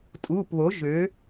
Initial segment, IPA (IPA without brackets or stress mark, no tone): tʼ